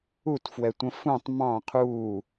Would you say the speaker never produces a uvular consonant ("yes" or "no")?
no